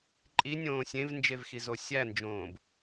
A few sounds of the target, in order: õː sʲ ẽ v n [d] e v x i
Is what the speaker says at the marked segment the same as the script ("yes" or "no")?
no